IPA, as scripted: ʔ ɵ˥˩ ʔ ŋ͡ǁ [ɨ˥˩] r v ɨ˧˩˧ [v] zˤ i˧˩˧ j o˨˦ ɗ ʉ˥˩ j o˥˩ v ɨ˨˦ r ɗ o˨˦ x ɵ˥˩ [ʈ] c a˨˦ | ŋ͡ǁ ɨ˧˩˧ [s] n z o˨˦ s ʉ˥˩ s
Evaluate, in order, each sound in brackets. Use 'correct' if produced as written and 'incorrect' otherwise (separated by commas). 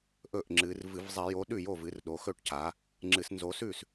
incorrect, correct, correct, correct